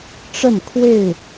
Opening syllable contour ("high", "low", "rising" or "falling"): falling